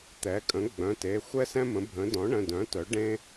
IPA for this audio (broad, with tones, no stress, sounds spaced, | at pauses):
t̪ ɛ˩˥ kʼ ə̃˩˥ ɡ͡b œ̃˩˧˩ t e˩˧˩ xʷ ɛ˥ s ɛ̃˥ m ə̃˩˥ bʱ ə̃˩˥ d ɔ̃˩˥ ɳ ə̃˩˧˩ d œ̃˩˥ t œ˩˥ ɖ ẽ˥